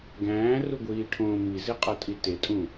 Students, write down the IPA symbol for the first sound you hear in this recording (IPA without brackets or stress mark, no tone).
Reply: ɡ